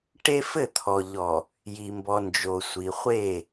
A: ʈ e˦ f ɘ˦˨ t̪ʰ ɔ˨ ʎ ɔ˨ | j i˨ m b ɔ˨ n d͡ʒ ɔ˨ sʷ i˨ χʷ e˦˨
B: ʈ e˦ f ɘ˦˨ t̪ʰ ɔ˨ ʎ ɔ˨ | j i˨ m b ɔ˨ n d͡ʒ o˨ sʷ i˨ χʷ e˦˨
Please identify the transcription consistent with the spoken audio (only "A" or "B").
B